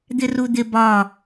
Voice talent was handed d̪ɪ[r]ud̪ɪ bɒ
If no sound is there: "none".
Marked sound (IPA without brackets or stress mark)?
r